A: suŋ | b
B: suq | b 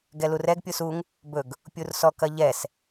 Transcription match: A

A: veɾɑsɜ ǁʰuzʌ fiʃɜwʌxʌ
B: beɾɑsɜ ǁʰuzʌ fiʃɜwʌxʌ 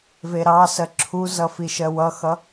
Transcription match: A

